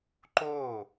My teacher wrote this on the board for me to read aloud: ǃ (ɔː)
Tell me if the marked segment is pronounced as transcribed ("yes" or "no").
no